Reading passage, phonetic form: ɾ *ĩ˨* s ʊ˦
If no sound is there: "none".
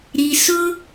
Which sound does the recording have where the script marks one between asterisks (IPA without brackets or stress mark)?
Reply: i˨